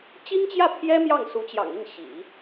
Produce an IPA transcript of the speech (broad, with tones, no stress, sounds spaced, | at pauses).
t͡ɕ i˥ ŋ t͡ɕ j ä˥˩ pʰ j ɛ˥ m j ɑ˥˩ ŋ s u˧˥ t͡ɕ j ɑ̰˨˩ ŋ i˥˩ ŋ ɕ ḭ˨˩˦